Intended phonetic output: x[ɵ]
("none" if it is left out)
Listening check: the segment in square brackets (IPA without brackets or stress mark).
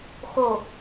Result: o